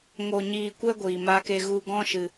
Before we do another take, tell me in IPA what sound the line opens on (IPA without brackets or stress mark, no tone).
ŋ